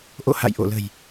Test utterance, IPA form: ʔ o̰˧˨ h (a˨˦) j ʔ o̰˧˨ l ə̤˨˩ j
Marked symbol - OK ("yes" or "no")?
no